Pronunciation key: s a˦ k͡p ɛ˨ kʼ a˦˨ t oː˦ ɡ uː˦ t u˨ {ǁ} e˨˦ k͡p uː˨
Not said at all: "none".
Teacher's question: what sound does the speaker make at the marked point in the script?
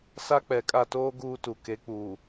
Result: k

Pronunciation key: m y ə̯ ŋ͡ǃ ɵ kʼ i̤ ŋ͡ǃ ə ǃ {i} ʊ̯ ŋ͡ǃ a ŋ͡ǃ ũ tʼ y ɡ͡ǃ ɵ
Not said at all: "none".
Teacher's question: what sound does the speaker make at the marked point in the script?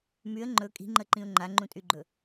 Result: ĩ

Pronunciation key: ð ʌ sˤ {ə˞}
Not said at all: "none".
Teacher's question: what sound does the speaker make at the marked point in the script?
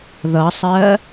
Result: ɜ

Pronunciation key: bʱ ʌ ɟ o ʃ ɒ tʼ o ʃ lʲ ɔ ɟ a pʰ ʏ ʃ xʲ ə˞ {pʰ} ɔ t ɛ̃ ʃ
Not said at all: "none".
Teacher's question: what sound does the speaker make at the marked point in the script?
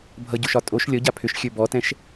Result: b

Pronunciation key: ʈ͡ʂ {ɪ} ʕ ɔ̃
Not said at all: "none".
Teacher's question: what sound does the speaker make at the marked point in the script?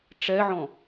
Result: ɛ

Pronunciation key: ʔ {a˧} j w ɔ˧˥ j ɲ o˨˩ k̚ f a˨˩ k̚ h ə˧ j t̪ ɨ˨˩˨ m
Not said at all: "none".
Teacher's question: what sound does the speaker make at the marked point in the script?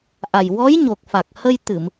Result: a˨˩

